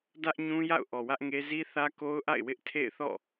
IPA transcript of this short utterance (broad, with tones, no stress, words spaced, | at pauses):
dä˦ʔɲũ˦ja̰˦˨ʊ̯ ʔɔ˨wä˦ʔŋe˦ zi˦θä˦ko˦ʊ̯ʔa̰˦˨ɪ̯ wɪ˦ʔtʰḛ˦˨ɪ̯θɔ̰˦˨